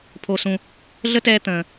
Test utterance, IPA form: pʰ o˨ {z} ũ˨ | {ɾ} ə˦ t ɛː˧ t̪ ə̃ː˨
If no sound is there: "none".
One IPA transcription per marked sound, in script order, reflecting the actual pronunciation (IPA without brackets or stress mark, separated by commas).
s, ɮ